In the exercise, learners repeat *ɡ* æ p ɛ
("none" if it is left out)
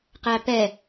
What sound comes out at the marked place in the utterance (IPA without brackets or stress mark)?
q